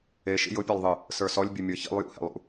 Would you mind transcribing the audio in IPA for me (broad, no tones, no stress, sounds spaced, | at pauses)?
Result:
e ʃ ḭ j ʊ pʲ e lˠ ðˤ ɨ | s ə˞ s ɔ lʲ bʲ ɨ mʲ ə˞ ç ḭ lˠ j ṵ h ḛ lˠ ṵ